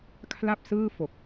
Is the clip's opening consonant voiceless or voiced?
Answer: voiceless